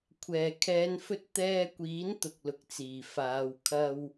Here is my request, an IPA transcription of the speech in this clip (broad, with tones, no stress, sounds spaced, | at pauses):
kʷʰ ɛː˨˩ kʰ ɛː˨˧ n f ɵ˧ t̚ t̪ ɛː˧ kʷ iː˨˥ n t̪ ʊ˨ k̚ l ʊ˨ k̚ t͡s iː˨˩ f aː˨˧ w kʰ ɐ˧ w